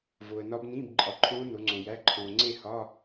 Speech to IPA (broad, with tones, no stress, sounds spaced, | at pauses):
v o˨ ə̯ n ɒ˦˥ b n ĩː˧˥˧ b ǃʼ ɒ˨ ǃʰ õː˦˥ n o˨˦ ŋ͡ǀ õ˨ j æ˧˥˧ ǃʰ õː˨ ŋ͡ǀ e˥˧ h ɒ˧˥˧